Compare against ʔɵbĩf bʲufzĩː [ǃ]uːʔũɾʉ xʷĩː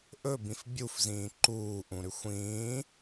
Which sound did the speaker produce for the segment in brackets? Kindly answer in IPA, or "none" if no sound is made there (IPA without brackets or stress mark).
ǃ